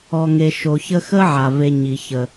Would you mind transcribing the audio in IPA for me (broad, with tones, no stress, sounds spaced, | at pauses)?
ɔ˨ ŋ e˨ ʃ o˨ ç ə˥ x ə˦ ʕ a˩ v e˨ ɲ i˩ ç ə˩